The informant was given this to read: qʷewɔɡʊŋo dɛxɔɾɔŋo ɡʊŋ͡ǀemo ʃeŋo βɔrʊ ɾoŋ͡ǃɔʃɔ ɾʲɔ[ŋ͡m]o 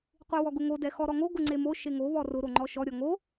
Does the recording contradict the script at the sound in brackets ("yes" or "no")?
yes